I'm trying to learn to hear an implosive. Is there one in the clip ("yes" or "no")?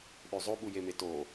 yes